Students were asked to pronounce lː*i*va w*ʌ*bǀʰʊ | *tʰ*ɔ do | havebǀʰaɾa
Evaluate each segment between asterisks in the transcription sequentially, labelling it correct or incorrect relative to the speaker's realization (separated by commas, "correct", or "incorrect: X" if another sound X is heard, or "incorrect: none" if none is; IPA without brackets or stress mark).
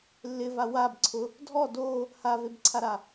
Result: incorrect: ɪ, incorrect: a, incorrect: dʱ